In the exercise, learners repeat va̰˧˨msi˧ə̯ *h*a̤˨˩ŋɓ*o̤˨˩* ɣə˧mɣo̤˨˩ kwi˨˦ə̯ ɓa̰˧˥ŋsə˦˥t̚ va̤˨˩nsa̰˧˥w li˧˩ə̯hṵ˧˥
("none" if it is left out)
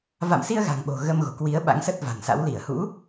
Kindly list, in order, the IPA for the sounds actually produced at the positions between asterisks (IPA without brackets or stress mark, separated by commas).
ɣ, o̤˨˩